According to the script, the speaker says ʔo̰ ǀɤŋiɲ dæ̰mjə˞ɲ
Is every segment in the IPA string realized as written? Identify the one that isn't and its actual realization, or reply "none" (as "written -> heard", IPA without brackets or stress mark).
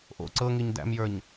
none